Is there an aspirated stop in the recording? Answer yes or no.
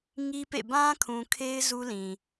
yes